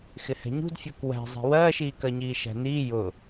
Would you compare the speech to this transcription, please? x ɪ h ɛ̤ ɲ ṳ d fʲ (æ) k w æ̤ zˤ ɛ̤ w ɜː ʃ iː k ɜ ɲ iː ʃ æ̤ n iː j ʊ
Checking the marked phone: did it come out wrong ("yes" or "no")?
yes